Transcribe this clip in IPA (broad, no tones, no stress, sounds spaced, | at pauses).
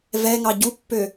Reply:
v ɛ ŋ ɑ ɟ u pː ø